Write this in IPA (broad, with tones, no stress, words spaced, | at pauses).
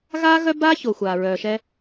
ɣaː˥ɣœ˥baː˥ ço˩xʷaː˩ɹœː˩ʃɛ˧